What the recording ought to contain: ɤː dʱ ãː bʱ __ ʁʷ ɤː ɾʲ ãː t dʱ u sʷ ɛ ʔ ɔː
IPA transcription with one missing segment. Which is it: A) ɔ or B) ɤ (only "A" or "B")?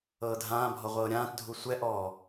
A